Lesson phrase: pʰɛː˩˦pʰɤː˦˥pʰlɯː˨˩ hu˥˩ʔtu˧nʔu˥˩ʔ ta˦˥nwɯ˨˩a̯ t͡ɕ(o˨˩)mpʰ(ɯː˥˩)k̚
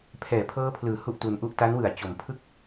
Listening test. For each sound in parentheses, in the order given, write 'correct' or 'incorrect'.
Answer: correct, incorrect: ɯ˥˩

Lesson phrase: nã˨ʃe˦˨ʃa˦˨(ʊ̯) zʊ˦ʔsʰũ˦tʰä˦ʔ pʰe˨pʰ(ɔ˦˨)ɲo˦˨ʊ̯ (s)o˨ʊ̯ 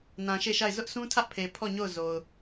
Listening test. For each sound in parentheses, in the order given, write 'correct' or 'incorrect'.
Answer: incorrect: ɪ̯, correct, incorrect: z

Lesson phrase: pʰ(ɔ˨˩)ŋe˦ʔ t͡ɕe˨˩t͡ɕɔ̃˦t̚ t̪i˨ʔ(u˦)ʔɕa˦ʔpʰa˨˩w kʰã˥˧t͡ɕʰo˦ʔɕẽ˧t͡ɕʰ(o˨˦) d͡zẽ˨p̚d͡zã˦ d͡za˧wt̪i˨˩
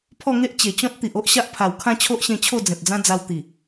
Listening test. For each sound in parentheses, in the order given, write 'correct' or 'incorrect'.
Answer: incorrect: ɔ˥˧, incorrect: o˦, incorrect: o˥˧

